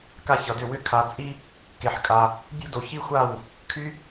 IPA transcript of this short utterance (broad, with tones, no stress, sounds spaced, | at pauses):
k a˥ ç ʌ˧ d ʏ˥˧ w ʏ˥˧ kʰ a˧ t͡sʼ i˥ | k e˧ ħ kʼ a˧ | bʲ o̤˥ d o˧ ç i˥ xʷ a˥˧ w | kʰ y˧